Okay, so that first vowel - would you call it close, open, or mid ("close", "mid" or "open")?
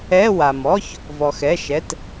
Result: mid